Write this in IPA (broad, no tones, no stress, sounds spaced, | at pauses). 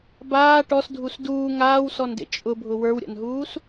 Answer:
b aː ʈ ɔ s dʱ u s d uː ŋ aː w s ɔ n d ḛ t͡ʃʼ ʊ bʱ ʊ w ə˞ w ɾʲ a̰ n ɦ uː s